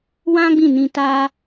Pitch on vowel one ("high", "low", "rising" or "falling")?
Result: high